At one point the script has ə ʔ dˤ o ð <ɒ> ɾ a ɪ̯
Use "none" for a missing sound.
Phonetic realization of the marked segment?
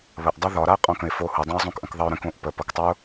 ɒ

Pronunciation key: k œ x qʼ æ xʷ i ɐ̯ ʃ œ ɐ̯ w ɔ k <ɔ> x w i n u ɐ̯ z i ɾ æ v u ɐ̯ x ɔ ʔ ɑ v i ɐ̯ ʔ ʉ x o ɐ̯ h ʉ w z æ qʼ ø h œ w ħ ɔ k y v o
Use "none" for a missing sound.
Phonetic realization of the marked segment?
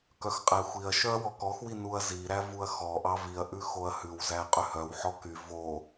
ɔ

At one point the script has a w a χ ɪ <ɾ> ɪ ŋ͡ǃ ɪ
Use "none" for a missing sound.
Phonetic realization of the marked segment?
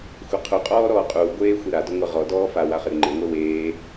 ɾ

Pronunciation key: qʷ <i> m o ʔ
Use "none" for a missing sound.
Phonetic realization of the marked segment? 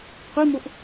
i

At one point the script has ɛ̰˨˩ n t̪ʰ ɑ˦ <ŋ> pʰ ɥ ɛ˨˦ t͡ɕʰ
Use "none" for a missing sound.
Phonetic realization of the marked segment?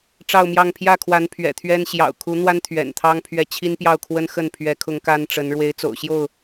ŋ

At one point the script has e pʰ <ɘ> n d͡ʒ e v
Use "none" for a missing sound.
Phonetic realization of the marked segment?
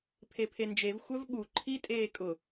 e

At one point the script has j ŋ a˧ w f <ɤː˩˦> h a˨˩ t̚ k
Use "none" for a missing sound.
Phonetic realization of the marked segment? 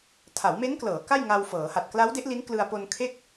ɤː˩˦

